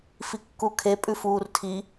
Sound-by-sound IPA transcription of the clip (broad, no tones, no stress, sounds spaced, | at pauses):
f i kː u kʰ e pʼ ʉ f uː r tʰ i